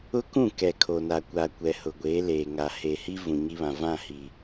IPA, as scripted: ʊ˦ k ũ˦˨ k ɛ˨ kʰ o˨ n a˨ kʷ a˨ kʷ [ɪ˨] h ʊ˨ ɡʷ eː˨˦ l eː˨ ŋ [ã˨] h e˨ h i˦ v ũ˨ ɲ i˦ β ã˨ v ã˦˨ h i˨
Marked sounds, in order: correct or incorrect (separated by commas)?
incorrect, incorrect